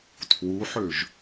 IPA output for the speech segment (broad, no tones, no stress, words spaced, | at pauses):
tʰwuħøʒ